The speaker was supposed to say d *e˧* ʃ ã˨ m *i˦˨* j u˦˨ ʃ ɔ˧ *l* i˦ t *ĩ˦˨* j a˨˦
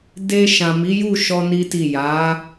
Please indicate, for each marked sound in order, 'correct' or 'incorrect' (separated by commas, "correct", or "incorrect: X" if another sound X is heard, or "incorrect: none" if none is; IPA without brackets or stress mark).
correct, incorrect: i˨˦, incorrect: n, incorrect: i˦˨